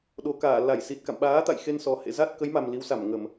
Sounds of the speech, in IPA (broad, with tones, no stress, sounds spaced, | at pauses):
ɗ o˨˩ k aː˧˩ l a˧˩ j s i˨˩ t̚ k a̰˧˨ m ɓ aː˨˦ t̪ a̰˧˨ j x e˧ n s ɔ˨˩ h ḛ˧˨ z a˦˥ t̚ k ə˨˦ j m a˨˩ m l i˨˦ w s a˧˩ m ŋ ə˧˩˨ m